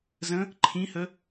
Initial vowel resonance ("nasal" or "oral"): nasal